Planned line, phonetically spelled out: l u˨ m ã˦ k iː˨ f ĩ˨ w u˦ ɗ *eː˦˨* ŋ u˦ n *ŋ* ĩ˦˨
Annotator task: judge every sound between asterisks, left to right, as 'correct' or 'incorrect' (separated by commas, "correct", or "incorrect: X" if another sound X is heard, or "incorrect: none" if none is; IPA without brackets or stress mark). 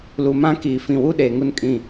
incorrect: eː˨, incorrect: kʼ